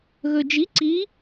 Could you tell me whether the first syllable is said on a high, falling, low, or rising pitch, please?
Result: low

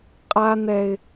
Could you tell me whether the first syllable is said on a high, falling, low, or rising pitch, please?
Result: high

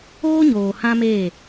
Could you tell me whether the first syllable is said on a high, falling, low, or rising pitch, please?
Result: high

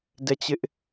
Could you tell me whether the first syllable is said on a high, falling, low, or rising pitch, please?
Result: falling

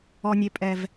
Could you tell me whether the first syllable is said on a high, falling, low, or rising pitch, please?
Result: high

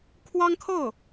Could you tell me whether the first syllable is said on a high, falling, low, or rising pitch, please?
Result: high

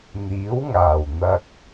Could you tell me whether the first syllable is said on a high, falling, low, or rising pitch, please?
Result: rising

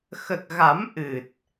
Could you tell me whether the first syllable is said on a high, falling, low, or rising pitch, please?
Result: low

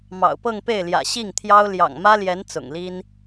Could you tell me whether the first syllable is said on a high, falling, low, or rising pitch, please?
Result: low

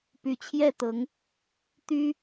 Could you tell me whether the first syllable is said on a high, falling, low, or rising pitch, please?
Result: low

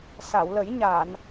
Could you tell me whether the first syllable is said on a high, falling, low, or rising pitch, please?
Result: low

